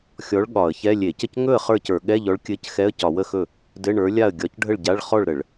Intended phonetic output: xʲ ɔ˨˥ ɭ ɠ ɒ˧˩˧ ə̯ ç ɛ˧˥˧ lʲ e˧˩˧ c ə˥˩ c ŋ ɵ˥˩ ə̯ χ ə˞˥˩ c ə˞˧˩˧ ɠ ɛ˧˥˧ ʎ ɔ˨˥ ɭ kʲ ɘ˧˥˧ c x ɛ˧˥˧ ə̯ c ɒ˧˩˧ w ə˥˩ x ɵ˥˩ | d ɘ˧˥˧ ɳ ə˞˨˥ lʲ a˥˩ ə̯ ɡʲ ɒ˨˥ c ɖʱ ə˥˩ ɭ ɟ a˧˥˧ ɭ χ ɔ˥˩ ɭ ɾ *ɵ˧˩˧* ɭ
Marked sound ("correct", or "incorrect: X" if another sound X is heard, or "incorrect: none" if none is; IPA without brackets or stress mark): incorrect: ə˧˩˧